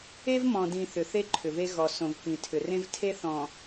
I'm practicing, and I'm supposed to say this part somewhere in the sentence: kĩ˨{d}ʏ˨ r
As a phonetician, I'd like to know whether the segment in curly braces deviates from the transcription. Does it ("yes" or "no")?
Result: yes